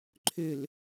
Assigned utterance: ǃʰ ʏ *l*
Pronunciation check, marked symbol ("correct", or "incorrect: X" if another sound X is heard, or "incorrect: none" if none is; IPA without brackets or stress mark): correct